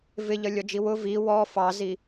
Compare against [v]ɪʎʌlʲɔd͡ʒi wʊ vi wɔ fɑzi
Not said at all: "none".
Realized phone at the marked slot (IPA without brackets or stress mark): v